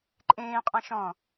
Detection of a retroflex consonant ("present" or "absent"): absent